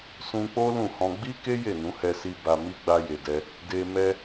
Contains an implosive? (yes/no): no